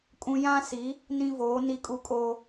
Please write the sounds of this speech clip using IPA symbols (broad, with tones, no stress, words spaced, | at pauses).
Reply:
kʼũ˦ jã˦si˨˦ | nĩ˦voː˨˦ ni˦kʼu˦kʼoː˦